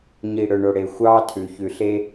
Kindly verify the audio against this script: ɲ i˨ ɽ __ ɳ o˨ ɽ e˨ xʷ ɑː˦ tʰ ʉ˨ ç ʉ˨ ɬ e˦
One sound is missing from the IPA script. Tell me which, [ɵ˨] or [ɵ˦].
ɵ˨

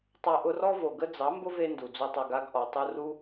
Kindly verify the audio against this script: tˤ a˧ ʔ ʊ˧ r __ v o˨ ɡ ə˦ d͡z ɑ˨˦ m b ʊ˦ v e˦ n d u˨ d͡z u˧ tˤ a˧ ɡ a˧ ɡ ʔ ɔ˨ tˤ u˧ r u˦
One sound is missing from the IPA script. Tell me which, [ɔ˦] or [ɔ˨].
ɔ˦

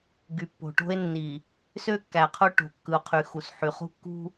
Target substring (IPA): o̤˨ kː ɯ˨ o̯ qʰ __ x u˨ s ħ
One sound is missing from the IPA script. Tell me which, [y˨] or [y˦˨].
y˨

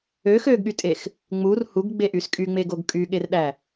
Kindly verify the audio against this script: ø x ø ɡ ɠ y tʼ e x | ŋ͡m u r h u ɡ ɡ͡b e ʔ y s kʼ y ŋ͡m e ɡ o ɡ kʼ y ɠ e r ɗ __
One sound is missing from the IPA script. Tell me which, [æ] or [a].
æ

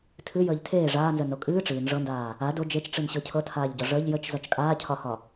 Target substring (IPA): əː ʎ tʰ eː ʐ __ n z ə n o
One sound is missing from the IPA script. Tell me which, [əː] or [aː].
aː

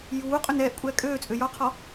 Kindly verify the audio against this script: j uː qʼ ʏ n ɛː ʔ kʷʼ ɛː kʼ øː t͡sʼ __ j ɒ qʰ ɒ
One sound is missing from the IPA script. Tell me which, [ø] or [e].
ø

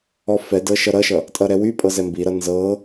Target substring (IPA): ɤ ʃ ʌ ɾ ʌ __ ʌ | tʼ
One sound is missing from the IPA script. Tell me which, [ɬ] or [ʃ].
ʃ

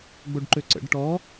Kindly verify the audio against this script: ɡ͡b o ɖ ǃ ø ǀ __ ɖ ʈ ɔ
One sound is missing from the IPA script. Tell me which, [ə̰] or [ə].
ə̰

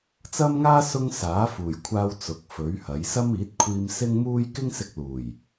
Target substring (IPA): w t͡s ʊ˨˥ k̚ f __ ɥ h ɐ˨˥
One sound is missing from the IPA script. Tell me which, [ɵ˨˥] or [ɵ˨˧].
ɵ˨˥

